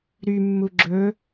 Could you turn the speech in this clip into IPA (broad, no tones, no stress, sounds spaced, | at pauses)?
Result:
ɾ y mː u ɡ͡ǁ ɵ